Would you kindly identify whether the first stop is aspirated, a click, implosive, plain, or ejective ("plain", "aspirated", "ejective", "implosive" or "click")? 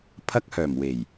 aspirated